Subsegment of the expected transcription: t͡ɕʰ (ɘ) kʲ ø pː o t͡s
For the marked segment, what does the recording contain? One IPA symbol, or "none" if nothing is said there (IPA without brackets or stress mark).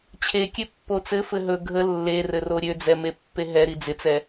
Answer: e